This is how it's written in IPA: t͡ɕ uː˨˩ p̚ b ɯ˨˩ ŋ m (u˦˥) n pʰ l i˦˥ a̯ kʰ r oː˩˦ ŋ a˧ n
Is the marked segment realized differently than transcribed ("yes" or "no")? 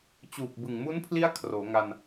no